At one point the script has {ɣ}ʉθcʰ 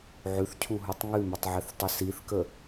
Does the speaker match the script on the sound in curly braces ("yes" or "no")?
no